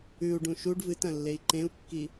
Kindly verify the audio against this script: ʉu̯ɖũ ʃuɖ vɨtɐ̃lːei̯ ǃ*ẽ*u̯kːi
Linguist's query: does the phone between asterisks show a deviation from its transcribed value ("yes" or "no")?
no